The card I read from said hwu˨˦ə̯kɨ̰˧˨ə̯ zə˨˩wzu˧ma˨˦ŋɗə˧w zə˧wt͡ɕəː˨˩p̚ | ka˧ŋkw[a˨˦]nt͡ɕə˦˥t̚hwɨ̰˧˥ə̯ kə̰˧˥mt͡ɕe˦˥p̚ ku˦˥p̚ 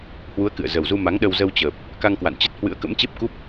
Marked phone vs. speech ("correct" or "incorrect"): incorrect